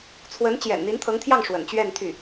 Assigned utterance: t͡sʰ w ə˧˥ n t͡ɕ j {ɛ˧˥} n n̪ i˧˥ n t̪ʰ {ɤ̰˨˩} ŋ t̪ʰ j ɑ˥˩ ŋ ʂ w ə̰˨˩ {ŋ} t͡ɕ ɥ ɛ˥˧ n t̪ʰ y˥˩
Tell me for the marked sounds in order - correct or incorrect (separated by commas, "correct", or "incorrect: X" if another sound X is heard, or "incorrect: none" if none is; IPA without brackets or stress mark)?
incorrect: ɛ̰˨˩, incorrect: ɤ˧˥, incorrect: n